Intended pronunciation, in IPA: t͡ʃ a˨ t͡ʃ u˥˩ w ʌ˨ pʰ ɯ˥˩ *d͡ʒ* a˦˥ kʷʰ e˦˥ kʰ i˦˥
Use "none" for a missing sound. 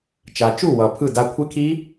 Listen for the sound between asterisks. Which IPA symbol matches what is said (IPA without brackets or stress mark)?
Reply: d